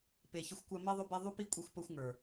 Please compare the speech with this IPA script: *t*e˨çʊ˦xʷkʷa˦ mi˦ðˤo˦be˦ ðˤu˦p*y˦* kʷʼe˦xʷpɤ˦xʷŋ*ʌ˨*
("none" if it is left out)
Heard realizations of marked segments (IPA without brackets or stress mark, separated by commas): p, i˦, ə˞˨